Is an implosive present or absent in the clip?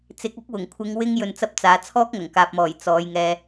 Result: absent